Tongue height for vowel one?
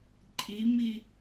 high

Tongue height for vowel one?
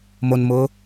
mid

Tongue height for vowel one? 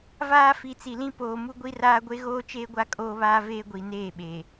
low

